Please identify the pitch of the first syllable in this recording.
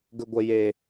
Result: low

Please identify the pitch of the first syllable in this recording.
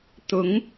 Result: rising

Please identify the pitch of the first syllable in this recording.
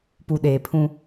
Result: low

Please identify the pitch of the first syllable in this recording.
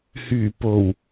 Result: low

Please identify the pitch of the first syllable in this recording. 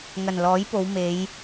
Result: low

